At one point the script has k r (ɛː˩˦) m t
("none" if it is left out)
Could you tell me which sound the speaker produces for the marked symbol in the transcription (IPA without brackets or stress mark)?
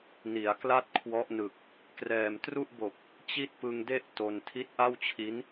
ɛː˨˩